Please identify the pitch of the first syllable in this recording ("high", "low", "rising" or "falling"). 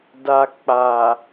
low